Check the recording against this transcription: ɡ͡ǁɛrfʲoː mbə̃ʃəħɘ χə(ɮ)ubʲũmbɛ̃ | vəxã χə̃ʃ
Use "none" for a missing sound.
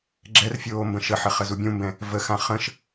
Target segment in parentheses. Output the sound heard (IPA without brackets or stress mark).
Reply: z